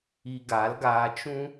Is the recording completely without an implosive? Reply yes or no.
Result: yes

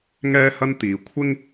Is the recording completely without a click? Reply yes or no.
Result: yes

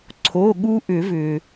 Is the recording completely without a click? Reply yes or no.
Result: no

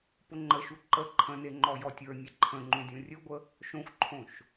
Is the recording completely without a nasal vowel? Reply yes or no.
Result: no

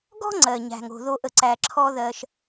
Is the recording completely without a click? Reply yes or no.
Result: no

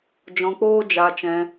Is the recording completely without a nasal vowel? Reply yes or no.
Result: no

